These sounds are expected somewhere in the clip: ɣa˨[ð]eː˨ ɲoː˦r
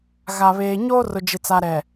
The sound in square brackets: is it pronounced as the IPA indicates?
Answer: no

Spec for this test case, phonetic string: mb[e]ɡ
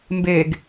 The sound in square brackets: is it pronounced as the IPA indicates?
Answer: yes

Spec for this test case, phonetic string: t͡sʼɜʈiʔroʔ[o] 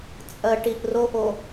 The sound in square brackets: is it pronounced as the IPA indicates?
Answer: yes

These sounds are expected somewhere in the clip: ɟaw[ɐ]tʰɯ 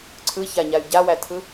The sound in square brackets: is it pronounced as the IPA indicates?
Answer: no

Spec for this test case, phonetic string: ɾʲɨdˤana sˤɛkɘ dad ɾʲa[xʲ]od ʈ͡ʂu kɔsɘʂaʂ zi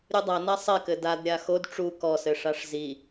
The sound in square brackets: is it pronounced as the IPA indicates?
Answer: no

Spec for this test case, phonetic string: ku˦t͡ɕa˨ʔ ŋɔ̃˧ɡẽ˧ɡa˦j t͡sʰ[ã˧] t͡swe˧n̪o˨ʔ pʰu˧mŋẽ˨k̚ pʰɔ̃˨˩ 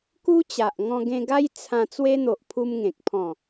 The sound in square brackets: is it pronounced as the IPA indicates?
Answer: yes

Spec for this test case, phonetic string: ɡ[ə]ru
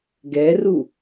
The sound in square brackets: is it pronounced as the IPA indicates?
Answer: no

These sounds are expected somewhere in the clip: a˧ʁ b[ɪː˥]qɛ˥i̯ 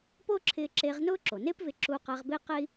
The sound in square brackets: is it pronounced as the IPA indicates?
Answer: yes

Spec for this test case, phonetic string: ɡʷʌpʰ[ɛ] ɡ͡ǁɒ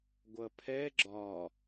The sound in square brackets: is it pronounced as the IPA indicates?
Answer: yes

